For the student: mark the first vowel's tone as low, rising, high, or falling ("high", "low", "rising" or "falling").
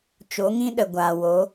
rising